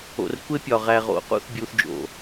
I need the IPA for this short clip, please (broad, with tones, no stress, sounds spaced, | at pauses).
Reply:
o̰˨ r kʷ e˦ pʲ ɒ˨ ʁ æ˨ ʁ o̰˨ q ṵ˦ θ bʲ u˦ θ d͡ʒ o̰˨